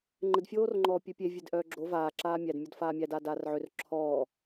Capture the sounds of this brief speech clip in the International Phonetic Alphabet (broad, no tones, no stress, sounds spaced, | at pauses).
ŋ͡ǃ ɘ d fʲ oː r ŋ͡ǃ ɔː pʲ ø pʲ e vʲ e d ʔ œː ɡ͡ǁ o v aː ǁ aː mʲ æ d mʲ ɔ d f aː mʲ æ d aː d aː r ʕ ø r ǁʰ ɔː